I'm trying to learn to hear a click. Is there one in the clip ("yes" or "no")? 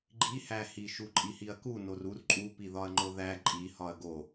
yes